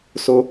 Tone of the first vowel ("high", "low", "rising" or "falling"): high